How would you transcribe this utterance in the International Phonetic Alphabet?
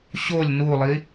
ɕolʲ nulˠi

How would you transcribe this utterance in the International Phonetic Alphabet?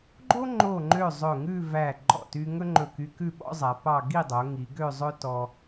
ɡ͡ǃo˥ŋ͡ǃo˧˩ŋ͡ǃø˧˩ zˤɵ˧˩ŋʉ˥˧væ˧˩ ɡ͡ǃɔ̰˧˩ty˧ ŋɵ˥ŋ͡ǃɵ˧˩ky˧kʉ˥˧ ɓɔ̰˥zˤæ˩˧ pɑ˥˧ ɡi˥˧dˤo˩˧ ŋi˩˧ɡø˥˧zˤɵ˥ tɔ˧

